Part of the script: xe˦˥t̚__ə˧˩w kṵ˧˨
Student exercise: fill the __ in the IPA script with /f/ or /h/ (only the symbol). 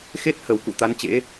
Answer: h